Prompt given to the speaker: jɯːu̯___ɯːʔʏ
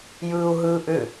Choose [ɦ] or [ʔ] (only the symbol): ɦ